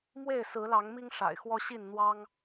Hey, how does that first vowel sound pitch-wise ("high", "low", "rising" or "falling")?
falling